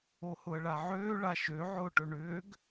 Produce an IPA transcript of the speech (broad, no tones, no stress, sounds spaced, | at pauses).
o h ʊ ə̯ ɭ a ʕ øː ɭ a ʃ ø ʕ ʊː ʈ ɵ ɳ ʏː ɡ